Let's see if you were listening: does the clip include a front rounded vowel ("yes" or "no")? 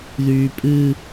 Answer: yes